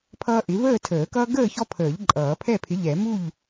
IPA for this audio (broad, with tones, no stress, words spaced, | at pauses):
pʰʌː˦ʔɪ˨˥ vəː˥˨tʰəː˨˩˦ kʌː˦ɡəː˥˨çɔ˦pʰəː˨˩˦ʎ ǃʼʌː˨˩˦pʰɛ˥˨pʰɪ˨˥ʎɛ˨˩˦ mu˥˨ʎ